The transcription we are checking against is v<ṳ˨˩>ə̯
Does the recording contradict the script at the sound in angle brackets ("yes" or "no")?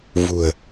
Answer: no